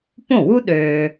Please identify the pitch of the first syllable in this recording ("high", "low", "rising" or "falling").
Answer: falling